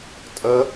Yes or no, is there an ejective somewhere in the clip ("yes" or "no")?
yes